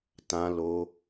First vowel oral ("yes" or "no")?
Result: no